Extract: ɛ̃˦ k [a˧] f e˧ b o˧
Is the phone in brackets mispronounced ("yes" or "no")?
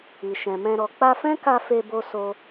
no